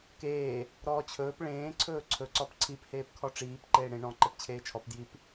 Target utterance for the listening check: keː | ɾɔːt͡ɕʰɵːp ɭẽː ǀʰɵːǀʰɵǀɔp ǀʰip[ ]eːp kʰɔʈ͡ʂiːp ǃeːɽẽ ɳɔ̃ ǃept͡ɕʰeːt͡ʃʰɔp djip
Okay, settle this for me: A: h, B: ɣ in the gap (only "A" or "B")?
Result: A